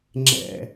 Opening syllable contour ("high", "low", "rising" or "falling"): low